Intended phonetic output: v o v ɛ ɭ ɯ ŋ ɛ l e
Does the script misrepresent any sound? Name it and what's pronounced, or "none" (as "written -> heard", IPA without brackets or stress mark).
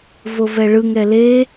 none